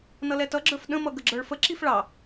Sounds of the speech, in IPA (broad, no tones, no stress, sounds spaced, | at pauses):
n ʌ l ɛ t ʌ ɡ͡ǁ ə˞ f ɗ ə̃ m ʌ ɡ ə ɡ͡ǁ ə˞ ɭ f ə ǁ i f ɭ ɑ